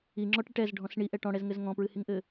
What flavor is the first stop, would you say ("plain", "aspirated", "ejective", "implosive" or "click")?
click